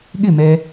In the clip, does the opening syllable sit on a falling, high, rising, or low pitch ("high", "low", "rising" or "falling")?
falling